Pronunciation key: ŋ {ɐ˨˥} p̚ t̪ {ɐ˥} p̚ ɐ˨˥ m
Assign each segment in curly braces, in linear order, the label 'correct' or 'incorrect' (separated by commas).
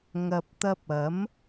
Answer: incorrect, incorrect